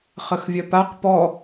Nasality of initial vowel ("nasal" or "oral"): oral